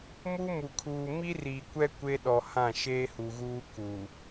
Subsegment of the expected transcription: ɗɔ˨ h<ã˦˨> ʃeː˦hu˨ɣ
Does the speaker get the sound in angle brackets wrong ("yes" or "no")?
no